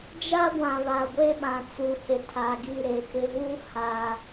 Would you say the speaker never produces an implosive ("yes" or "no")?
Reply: no